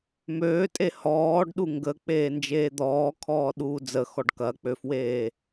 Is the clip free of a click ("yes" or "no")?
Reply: yes